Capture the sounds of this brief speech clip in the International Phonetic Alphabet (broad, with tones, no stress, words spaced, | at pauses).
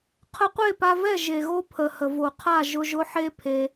qʰə˧qʷe˦˨pa˧vɛ˦˨ ʒe˨ɣo˦pʰə˨ hə˨vo˨qʰa˦˨ ʒʊ˧ʒʊ˦ħe˦ pʰe˧